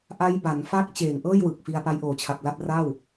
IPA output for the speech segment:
ʔ a˦˥ j b a˩˦ n f a˥˩ k̚ t͡ɕ eː˨˩ ŋ ʔ ɤː˥˩ j w ɯ˨˩ k̚ f i˧ a̯ p a˦˥ j ʔ oː˨˩ t͡ɕʰ a˨˩ p̚ l a˥˩ p̚ r a˥˩ w

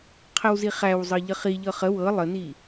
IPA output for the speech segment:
qʰ ə w z i χ æ w zˤ ɤ ʎ ə χ i ʎ ɤ χ ə w ɤ lˠ ə n i

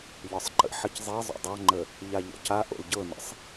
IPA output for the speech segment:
ʎ ɒ sˤ ǃ ə̰ ħ ə c zˤ e zˤ o̰ dˤ ɑ ŋ͡ǃ ə | ʎ a ʎ ɔ̰ c a ʔ o̰ l ɟ ɤ n ə̰ sˤ

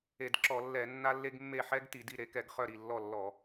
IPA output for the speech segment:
e˧˩˧ d ǁ ɔ˧˩˧ lː ɛ˧˩˧ nː a˦ lː e˦ ɡ mː e˥˩ ħ ɛ˦ ɡ t i˧˩˧ d i˥˩ ɾ e˨˥ k ɛ˧˩˧ ɡ χ œ˥˩ ɾ i˥˩ lː ɔ˥˩ lː ɔ˧˩˧

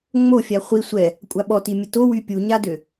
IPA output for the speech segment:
ŋ͡m o fʲ a χʷ i sʷ ɛ | kʷʼ a ɓ ɔ t i mʲ ə t o w y pʲ u ɲ a d ø

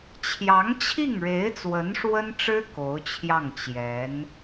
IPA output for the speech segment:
t͡ɕʰ j ɑ˧˥ ŋ t͡ɕʰ i˥˩ ŋ ɻ e˧˥ ɪ̯ t͡s w ə˧˥ n ʂ w ə˥ n ʈ͡ʂ ɻ̩˥ k o˧˥ ʊ̯ t͡ɕʰ j ɑ˥˩ ŋ t͡ɕ j ɛ˧˥ n

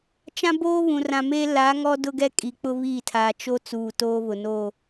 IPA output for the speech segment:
t͡ʃ ã˦ b oː˦ β ũ˨ r ã˨ m eː˦ l a˨˦ ŋ ɔ˦ d ʊ˦ ɡ ɛ˦ kʼ i˨ k͡p ʊ˦ β iː˦˨ tʰ aː˨ t͡ʃ o˦ t͡s uː˨ t oː˦ β ʊ˨ n o˦˨

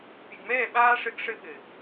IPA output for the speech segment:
pʲ ə˨ ɡ m ɛː˦˨ ɓ aː˦ ʂ ɘ˦ ɡ ʂ ɘ˦ ɓ ɘ˨

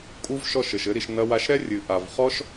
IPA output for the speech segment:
kʼ u˦ v ʃ ɔ˦˨ ʃ ɘ˨ ʃ ɘ˦ ɾ i˧ ʃ n ɐ˦ w a˧ ʃ ɾ ɛ˦ rʲ ɨ˨ ʔ a˨ v χ ɔ˦ ʃ

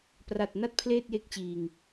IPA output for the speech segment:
p r a˨˩ t̚ n a˥˩ t̚ pʰ l eː˥˩ t̚ j e˦˥ k̚ t͡ɕ iː˨˩ ŋ

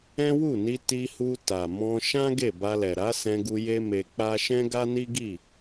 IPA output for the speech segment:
ɛ̃˦ w u˦˨ n i˧ t i˧ h u˧ t a˨ m ɔ̃˧ ʃ ã˦ ɡ e˦˨ b a˧ l ɛ˨ ɾ a˨˦ s ɛ̃˧ ɡ u˧ j e˦ m e˧ k͡p a˦ ʃ ɛ̃˦ ɡ a˦ n i˦ ɡ i˦˨

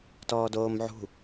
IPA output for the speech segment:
t ɔː d oː m ʕ ṳ

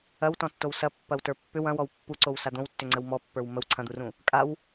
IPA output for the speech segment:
ɐ w t ɔ̃ tː o w s ɐ pː ɐ w t ə˞ pː ʏ w ɐ̃ w ɔ w pː u ǀ o w s a d̪ õ w tː ʏ ŋ͡ǀ ə w m ɔ pː ə˞ w m ə w ǀʰ ɐ̃ d̪ u r ũ | kʼ a w

